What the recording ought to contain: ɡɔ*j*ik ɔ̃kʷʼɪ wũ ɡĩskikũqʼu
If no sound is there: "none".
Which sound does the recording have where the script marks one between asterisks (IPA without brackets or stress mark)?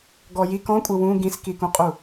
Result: j